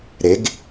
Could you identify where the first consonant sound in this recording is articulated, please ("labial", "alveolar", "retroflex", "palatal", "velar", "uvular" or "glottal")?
alveolar